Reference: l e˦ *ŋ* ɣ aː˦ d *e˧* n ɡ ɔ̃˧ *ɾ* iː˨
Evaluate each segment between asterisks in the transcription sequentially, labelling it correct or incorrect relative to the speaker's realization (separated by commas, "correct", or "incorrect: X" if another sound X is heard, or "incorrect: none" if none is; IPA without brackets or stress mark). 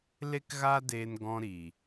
incorrect: k, incorrect: eː˧, correct